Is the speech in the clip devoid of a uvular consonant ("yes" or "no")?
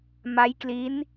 yes